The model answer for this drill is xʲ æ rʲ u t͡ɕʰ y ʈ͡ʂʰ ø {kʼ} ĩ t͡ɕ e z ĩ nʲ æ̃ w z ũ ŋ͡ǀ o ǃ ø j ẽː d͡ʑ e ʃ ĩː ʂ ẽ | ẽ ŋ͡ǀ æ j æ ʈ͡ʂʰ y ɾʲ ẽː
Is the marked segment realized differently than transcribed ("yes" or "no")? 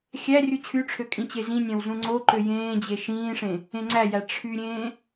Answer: no